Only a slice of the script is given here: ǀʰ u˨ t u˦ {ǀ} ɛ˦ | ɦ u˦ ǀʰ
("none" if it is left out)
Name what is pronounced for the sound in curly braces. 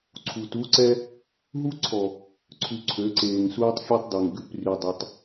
ǀ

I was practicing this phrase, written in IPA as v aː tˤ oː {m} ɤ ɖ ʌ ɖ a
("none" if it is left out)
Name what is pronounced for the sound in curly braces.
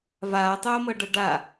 m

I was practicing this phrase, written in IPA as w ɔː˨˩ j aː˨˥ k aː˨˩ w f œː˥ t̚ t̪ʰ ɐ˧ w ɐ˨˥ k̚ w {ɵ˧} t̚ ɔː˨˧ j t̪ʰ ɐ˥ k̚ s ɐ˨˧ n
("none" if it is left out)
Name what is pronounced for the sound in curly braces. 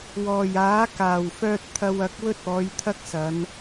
ɵ˥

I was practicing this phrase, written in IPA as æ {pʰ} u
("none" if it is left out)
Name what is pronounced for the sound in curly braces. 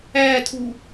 tʰ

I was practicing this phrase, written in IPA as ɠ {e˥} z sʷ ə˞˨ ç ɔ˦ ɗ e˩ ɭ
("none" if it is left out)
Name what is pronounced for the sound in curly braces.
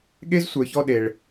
e˥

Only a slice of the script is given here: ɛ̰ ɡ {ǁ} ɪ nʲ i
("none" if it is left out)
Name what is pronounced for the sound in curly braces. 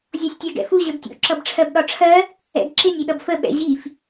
ǁ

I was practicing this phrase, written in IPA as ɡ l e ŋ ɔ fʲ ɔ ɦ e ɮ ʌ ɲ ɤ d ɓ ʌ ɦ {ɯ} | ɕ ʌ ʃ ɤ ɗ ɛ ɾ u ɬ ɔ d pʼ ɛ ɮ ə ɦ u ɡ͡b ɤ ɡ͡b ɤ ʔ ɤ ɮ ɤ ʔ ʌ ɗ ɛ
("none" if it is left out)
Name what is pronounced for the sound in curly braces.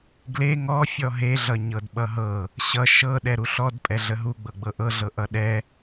ɤ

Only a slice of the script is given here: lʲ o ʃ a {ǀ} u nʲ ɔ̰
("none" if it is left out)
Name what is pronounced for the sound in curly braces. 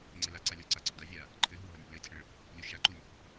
ǃ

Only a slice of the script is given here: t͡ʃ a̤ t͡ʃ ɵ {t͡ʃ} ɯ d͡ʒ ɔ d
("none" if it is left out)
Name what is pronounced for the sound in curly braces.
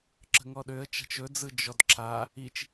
d͡z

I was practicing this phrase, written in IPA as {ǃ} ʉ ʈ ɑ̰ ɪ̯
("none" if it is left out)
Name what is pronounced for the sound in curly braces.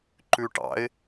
ǃ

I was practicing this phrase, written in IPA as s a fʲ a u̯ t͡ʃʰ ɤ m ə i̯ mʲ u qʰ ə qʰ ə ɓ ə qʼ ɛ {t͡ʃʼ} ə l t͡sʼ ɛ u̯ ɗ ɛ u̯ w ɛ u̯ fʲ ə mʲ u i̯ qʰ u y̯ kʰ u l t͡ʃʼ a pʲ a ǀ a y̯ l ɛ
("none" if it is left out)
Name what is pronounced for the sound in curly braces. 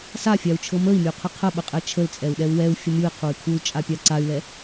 t͡ʃʰ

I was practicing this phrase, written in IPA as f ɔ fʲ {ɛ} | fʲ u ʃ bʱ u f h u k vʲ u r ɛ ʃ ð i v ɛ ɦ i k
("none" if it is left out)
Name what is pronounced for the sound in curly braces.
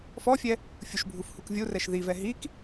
ɛ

